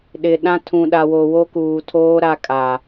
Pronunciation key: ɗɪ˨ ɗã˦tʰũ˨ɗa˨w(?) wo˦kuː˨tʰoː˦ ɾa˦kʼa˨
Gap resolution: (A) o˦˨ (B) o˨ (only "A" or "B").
B